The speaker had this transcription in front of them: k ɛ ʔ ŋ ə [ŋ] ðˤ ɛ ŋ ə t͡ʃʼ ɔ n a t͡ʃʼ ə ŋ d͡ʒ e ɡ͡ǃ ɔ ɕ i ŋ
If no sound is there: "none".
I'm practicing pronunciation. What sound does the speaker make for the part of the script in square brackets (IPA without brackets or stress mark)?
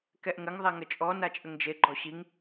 ŋ